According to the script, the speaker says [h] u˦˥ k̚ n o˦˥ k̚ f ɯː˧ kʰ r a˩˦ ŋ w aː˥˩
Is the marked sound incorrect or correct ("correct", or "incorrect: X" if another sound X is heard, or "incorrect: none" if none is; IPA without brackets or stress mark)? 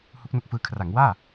correct